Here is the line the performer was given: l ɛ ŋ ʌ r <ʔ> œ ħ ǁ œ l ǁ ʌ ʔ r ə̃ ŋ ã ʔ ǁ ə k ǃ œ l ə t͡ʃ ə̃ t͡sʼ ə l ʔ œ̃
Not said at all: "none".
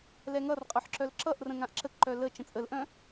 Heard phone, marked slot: qʼ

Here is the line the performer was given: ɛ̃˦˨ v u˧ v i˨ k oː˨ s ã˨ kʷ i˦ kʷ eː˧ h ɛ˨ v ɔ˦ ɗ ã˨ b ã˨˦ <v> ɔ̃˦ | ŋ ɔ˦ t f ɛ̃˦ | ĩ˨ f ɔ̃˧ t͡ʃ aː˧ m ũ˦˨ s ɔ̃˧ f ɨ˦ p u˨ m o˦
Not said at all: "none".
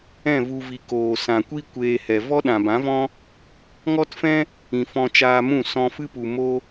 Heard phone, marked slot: v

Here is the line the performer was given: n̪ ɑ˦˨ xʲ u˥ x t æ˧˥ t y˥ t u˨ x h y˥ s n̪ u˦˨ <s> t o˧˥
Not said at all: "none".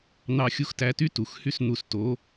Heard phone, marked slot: s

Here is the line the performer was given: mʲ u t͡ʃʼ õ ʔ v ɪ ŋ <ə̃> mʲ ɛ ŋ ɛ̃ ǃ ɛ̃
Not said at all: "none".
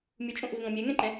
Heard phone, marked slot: ɔ̃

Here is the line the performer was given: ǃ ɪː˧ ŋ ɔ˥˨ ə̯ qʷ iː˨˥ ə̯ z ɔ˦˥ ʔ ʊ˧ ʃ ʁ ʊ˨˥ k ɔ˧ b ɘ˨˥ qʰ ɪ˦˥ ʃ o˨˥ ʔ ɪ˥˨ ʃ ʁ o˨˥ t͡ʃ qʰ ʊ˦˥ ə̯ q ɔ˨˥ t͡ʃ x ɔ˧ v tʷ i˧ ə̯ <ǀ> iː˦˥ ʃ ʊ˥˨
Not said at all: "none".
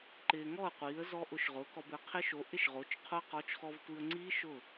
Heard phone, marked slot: ŋ͡ǀ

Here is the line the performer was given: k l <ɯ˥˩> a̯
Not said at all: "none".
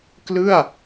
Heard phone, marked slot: ɯ˥˩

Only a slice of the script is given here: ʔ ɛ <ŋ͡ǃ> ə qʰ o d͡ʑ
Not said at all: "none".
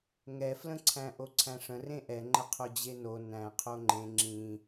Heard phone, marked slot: ŋ͡ǃ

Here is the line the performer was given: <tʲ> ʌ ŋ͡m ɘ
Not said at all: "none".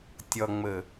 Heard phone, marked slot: tʲ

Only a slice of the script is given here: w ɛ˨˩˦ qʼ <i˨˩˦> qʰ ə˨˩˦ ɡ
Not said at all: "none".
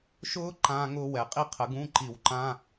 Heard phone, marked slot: i˥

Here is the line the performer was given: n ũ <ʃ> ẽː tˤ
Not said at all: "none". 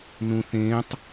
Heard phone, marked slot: θ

